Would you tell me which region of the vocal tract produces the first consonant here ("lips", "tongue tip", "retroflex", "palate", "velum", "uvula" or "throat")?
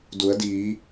tongue tip